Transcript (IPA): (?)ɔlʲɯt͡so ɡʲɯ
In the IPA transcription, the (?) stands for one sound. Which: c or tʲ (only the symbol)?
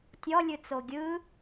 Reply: tʲ